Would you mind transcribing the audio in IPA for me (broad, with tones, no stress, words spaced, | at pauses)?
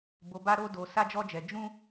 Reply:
bo˧ba˦ ɾo˦do˧ sa˦d͡ʒɔ˦d͡ʒɛ˧ d͡ʒũ˦